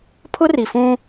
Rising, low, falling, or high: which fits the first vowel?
high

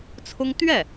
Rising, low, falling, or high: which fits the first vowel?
high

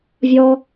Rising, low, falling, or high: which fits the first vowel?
high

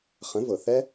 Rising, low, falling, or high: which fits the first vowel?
rising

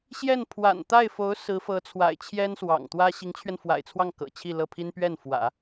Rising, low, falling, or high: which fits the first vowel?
falling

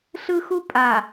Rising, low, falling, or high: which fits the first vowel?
high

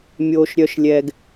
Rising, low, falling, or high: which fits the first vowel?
low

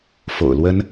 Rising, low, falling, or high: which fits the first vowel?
low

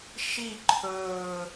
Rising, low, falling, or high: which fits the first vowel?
falling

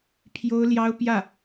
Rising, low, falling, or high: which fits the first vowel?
high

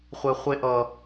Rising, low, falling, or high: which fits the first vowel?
high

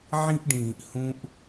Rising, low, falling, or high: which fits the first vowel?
high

